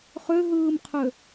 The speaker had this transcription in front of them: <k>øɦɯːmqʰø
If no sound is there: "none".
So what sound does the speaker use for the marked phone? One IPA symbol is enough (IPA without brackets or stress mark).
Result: χ